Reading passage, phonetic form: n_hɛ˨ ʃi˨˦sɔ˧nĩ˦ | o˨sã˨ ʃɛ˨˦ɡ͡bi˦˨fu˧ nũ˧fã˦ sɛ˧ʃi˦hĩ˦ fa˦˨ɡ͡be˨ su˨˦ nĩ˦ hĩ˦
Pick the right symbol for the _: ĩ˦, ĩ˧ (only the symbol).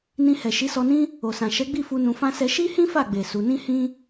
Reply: ĩ˧